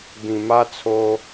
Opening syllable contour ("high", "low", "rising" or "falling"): low